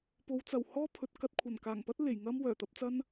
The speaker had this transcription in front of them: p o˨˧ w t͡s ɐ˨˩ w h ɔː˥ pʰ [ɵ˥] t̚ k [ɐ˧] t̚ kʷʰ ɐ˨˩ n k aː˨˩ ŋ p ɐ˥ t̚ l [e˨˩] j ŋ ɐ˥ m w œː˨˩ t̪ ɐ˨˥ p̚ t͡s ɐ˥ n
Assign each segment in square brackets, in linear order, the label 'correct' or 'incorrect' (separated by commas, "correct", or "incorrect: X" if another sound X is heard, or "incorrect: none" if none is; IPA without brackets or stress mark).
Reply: incorrect: ɵ˨˥, correct, correct